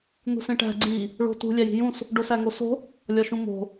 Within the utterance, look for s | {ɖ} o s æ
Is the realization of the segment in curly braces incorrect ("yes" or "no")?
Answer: no